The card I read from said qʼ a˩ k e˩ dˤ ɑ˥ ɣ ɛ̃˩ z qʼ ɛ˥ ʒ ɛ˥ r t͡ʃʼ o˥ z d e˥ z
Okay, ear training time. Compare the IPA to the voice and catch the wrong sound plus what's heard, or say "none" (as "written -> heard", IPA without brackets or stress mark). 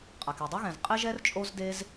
none